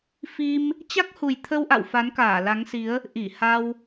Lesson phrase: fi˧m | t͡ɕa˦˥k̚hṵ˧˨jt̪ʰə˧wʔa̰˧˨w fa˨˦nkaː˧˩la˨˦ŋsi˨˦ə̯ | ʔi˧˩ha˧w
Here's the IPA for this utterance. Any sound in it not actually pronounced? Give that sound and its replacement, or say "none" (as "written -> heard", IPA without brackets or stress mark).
ṵ˧˨ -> u˨˩